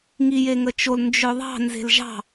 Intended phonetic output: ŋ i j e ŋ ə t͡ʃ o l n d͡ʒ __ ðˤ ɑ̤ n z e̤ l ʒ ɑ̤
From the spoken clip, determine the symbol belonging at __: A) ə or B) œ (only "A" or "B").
B